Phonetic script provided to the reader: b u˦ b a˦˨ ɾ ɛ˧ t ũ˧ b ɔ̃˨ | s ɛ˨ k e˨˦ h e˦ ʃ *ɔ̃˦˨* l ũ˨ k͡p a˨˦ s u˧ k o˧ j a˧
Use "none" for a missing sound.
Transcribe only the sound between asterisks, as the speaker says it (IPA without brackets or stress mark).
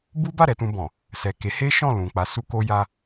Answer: ɔ̃˦˨